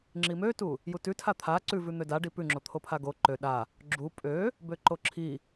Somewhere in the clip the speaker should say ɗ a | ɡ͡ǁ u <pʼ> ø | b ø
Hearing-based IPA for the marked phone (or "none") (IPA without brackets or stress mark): pʼ